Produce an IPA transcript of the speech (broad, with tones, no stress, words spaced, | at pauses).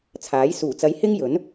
t͡sʰaː˨˥j suː˨˩t͡sɐ˨˥j hɪ˥ŋjɵ˨˥n